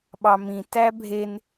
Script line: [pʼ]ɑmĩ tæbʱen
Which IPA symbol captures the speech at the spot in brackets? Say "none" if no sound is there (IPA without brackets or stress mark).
ɓ